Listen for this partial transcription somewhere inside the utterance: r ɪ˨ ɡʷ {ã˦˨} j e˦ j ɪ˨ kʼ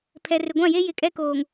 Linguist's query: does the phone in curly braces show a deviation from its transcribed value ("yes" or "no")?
no